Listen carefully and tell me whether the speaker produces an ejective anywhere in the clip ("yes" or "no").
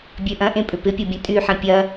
yes